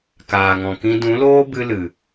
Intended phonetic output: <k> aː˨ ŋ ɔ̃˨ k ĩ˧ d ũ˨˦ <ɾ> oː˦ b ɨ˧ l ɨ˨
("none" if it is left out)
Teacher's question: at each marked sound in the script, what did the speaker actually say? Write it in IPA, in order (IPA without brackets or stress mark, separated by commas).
k, l